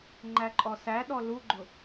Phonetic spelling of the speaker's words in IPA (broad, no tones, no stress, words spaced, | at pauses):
ŋ͡ǃæǃʼɔsæɗɔ luɡ͡ǃʊ